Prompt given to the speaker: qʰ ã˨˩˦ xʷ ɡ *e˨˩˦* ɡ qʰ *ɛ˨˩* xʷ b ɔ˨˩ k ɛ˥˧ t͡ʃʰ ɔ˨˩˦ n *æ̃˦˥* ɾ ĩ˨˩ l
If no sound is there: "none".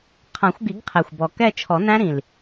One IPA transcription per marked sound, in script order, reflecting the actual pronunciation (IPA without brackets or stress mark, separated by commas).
i˨˩˦, ɛ˨˩, æ̃˦˥